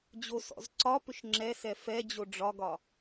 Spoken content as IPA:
d͡ʑ o s ɔ̰ z ǀ ɒ p ʏ ʃ ŋ͡ǁ ɛ s ɛ f ɛ d͡ʑ o ɖ͡ʐ ɒ ɡ ɒ

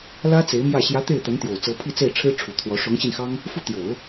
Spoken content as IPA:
l ä˥ t͡s e˧˥ ɪ̯ m j ä˥˩ ɕ j ä˧˥ t̪ e˥˩ ɪ̯ t̪ ə˧˥ n t̪ j o˨˩ ʊ̯ t͡s ɤ˧˥ pʰ i˥˧ t͡s e˥˩ ɪ̯ ʈ͡ʂʰ ɻ̩˥ ʈ͡ʂʰ u˨˩ t̪ʰ w ɔ˧˥ ʂ ʊ˧˥ ŋ ɕ i˧ n x ɑ˥ ŋ | f u˥˩ t̪ j o˨˩˦ ʊ̯

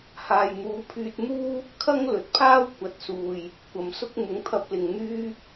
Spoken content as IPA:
h aː˨ j n̪ uː˨˥ pʰ yː˧ t̚ n̪ uː˥ | kʰ ɐ˥ ŋ l ɵ˨ t̚ pʰ aː˥ w kʷ ɐ˨ t̚ s uː˨ j | kʷ ɐ˨ m s ʊ˥ k̚ m ʊ˨˧ ŋ t̪ʰ ɐ˧ p̚ l ɪ˨ ŋ n̪ yː˥

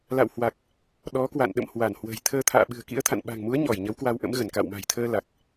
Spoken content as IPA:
l a̰˧˨ w h w a˨˩ k̚ | ɗ ɔ˨˦ k w a̰˧˨ n ɗ ə̰˧˨ m h w a˧˩ n h w ə̤˨˩ j t̪ʰ əː˧ t̪ʰ a̰ː˧˨ ɓ ɨ̤˨˩ ə̯ k ḭ˧˥ ə̯ t̪ʰ a̰˧˨ n ɓ a̤˨˩ ŋ m u˨˦ ə̯ ɲ ɔ˧˩ j ɲ ə˨˦ w k w a˧ w ʔ ə̰˧˥ m ɣ ə˧˩ n k a̰˧˨ w m a̤˨˩ j t̪ʰ əː˧ l a˨˩ k̚

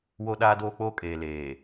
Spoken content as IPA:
w o˦ ɗ aː˦ d oː˦ k͡p oː˦ kʼ eː˨ l eː˨

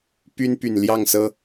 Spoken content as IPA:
p y˦ n p y˨˩ n l j ɑ˥˨ ŋ s ɤ˦

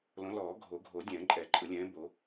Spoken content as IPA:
l õ˨˦ l ɔː˨˩˦ ɡʱ o˨˩˦ ɡʱ o˨˩˦ dʲ ɛ̃ː˨˩˦ ǃʼ ɛ˨˩˦ ǃʼ ɯ˨˩˦ lʲ ɛ̃ː˨˦ b o˨˦

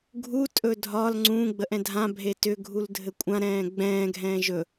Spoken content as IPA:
ɡʱ u tʼ ɵ dʱ ɒ l ŋ͡ǀ ũː ɡ͡b ə ʔ ɛ̃ dʱ ã bʱ e t ʏ ɡʱ u l dʱ ɘ kʷʼ ã ɾ ɛ̃ː ɡ͡b ɛ̃ː ɡʱ ɛ̃ː ʒ ɵ

